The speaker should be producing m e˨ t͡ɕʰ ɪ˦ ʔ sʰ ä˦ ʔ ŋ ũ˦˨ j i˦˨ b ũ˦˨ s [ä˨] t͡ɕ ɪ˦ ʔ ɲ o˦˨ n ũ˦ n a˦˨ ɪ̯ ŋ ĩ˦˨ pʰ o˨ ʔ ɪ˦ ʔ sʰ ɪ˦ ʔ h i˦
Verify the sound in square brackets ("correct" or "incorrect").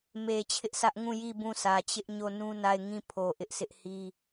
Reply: correct